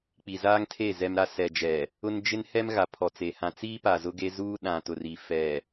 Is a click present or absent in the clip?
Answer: absent